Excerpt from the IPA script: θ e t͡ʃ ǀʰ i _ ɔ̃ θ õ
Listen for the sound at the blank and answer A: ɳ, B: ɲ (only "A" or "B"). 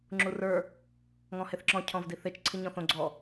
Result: B